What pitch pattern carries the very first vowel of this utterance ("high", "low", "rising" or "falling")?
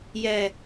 low